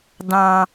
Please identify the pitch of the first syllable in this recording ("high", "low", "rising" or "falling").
high